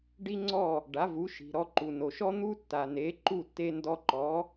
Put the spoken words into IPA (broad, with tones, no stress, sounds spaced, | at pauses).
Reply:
ɖ i˥ ŋ͡ǀ ɔ˥˩ | ɖ a˩˥ v u˩˥ ʃ i̤˩ ɾ ɔ˧ ǃ u˩ n o˩ ʃ ɔ˥ n̪ u˥ tː a˩ n e˩˥ ǃ u˥˩ tː e˧ n d ɔ˧ ǃ ɔ˩˥